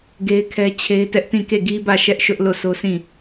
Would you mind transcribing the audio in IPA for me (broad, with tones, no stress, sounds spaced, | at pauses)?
ɡ e˦ ɪ̯ kʰ ɛ˦ t͡ɕʰ e˦ ɪ̯ t ɛ˦ ʔ t ĩ˦˨ k e˦˨ ɡ i˦ b ä˦˨ ʃ ɛ˦ ʔ ʃ ʊ˦ ʔ l o˦˨ s o˦ sʰ ĩ˦˨